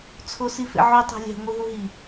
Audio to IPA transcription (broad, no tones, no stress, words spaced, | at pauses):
t͡sʰosifḛʕu tˤæ̤lʲæ̤ ŋʷiɦuɦi